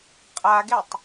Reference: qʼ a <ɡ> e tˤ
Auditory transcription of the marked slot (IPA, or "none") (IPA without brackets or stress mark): ɡ